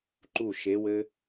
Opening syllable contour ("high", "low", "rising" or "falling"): falling